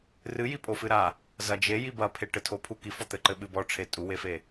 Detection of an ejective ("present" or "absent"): present